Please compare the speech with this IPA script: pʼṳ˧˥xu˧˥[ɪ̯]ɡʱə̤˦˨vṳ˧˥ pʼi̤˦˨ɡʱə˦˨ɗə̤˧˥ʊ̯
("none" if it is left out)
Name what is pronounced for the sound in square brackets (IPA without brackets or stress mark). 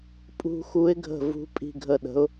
ɪ̯